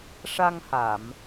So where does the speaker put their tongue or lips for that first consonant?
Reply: retroflex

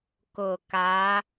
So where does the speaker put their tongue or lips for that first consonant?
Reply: velum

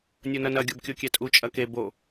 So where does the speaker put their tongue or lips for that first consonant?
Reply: tongue tip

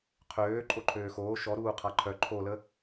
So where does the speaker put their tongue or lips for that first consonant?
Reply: uvula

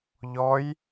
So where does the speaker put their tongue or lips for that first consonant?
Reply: palate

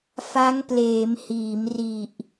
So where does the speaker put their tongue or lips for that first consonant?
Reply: lips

